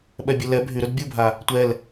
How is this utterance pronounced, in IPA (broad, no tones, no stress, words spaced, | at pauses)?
ɓɛbʲɘlɛ bʱyɾɵd bʲubʱa | tʷɛl